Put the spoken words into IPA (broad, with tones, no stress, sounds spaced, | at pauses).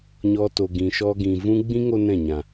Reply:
ɲ ɔ˧ t o˨ ɡ ĩ˨ ʃ ɔ˧ ɡ ĩ˨ v ũ˦ ɡ͡b ĩ˦ ŋ o˦ n ɛ̃˦˨ ɲ ã˨